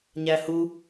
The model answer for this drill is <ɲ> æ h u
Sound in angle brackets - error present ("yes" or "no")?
no